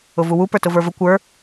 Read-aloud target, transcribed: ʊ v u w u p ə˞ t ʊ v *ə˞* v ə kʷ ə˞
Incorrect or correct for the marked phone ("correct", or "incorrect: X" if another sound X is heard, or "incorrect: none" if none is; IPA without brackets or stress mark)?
correct